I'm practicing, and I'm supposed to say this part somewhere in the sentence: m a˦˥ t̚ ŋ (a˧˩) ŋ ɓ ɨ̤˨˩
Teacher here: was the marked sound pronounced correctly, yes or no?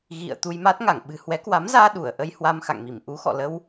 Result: yes